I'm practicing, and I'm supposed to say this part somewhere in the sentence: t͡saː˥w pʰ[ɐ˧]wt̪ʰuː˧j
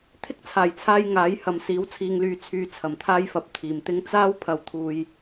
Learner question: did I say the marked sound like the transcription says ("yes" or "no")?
yes